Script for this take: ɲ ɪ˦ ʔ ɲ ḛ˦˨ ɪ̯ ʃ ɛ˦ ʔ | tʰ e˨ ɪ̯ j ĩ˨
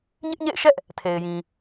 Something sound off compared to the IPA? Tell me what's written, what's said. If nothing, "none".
none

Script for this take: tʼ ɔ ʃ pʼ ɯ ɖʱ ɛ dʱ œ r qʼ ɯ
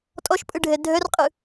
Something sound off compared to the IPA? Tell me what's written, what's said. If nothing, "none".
none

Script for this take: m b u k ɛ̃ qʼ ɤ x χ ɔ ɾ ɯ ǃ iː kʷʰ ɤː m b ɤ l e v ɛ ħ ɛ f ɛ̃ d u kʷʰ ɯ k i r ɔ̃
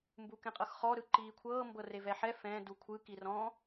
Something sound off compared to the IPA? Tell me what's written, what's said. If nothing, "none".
l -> r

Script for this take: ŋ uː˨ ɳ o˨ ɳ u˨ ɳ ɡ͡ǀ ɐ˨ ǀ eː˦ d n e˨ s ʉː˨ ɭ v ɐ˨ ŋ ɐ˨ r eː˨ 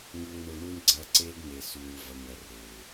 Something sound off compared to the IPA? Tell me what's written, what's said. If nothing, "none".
none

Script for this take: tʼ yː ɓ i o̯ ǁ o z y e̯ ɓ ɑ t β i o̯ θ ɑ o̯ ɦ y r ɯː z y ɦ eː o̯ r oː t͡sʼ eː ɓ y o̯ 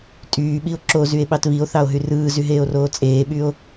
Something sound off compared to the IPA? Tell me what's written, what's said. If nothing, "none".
none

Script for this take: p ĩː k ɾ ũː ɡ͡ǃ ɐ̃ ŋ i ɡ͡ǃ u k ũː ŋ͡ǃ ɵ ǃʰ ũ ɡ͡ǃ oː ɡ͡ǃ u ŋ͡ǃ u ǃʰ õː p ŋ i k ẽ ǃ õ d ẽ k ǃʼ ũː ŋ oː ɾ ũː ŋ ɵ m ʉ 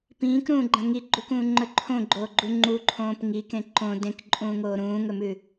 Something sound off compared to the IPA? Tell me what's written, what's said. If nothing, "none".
ũ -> õ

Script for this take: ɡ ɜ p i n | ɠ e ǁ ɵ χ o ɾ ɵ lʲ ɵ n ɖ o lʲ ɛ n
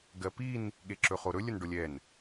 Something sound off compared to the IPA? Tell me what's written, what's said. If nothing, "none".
none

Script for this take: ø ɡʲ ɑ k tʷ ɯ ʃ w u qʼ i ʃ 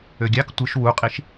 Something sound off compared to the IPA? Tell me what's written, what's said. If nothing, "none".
none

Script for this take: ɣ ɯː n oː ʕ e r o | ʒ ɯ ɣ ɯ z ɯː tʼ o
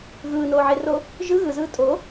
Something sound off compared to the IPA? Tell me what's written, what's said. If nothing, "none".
none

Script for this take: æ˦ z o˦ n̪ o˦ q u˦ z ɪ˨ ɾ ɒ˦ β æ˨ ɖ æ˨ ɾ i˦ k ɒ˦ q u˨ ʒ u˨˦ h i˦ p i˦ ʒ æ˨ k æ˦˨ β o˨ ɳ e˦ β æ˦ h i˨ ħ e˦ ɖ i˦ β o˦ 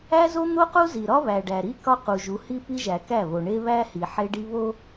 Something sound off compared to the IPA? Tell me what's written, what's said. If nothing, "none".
ɪ˨ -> i˨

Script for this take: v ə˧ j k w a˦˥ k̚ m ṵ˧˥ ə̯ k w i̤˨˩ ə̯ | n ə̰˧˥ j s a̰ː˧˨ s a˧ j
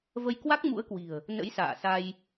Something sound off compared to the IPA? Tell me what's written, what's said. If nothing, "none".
none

